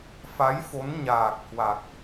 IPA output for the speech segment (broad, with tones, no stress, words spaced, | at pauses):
fa˨˦j fo˨˦nɲaː˨˩k̚hwa˨˩k̚